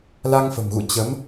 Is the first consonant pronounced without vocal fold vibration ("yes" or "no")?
no